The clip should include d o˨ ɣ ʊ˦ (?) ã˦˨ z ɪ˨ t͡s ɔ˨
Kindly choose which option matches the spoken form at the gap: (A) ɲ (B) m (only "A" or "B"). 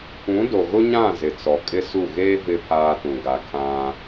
A